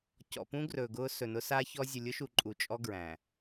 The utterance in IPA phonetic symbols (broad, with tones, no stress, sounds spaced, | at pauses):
c ɔ̰˨ p ũ˦ ɡ r ɵː˨ ɡ ʊː˦ s ɵ˨ n ʊ˦ s a˦ ç ɔ˦ zʲ ʊ˨ lʲ ʊ˦ ʃ u˨ ǃʼ u˨ t͡ʃʼ ɔ˦ ɡ ɹ æ̃˨